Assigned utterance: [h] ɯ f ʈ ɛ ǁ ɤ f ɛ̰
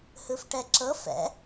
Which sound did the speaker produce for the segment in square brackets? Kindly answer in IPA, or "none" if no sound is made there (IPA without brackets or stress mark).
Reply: h